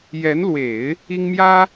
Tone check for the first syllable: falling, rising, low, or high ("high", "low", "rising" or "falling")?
rising